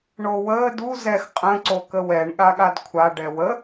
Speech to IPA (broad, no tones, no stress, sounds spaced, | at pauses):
ɳ o w əː d u z ɛ x qʼ ə̃ ǀ o k ə w ɛ ɳ ɠ a ɠ a d kʷʰ a ɖ ɛ w ə